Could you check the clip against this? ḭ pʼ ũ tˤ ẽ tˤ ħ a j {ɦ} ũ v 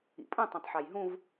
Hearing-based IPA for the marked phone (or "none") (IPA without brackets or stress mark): ɦ